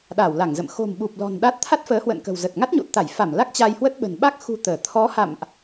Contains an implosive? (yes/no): yes